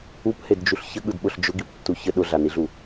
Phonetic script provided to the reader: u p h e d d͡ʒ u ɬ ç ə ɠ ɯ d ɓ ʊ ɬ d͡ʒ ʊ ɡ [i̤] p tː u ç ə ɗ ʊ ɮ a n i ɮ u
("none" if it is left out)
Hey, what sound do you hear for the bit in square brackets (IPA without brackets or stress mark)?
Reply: i